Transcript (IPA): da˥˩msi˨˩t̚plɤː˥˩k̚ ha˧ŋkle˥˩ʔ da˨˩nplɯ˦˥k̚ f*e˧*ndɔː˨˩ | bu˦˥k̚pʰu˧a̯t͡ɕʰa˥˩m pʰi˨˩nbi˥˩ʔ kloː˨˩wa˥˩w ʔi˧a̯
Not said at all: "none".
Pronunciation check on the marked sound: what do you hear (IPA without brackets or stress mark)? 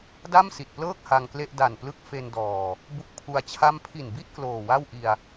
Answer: e˧